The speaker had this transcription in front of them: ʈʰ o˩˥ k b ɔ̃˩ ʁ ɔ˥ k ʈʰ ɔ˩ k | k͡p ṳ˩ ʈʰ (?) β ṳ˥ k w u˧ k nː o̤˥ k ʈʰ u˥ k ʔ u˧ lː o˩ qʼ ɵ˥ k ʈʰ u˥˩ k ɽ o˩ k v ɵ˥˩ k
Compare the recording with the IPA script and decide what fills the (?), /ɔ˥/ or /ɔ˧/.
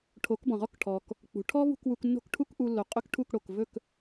ɔ˥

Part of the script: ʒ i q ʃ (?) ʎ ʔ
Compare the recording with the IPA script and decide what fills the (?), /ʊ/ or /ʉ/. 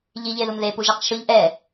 ʊ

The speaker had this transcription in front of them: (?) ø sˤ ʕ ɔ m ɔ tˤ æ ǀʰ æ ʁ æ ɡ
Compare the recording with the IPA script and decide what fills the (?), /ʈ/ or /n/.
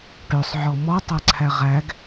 ʈ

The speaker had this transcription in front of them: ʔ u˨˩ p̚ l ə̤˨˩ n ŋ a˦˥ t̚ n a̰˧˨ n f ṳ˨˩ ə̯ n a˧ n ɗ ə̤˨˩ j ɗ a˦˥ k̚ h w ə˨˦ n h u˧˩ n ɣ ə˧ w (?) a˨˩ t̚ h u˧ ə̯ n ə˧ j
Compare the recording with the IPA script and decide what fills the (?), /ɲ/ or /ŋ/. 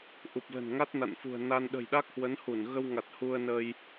ŋ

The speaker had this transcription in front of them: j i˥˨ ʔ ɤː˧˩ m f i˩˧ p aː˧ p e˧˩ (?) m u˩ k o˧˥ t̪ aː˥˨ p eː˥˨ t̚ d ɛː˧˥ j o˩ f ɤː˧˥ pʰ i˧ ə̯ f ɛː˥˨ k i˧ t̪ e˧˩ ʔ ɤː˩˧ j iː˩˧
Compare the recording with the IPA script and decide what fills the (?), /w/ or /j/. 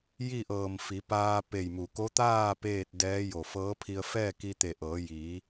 j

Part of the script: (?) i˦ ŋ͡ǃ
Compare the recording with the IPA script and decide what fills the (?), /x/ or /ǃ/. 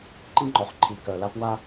ǃ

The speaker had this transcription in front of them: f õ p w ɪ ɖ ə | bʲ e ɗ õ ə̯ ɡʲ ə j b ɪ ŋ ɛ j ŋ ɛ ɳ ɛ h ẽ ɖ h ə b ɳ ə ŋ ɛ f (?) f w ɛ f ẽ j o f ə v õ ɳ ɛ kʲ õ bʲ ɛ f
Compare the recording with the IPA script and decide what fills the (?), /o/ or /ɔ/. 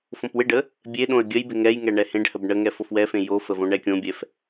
o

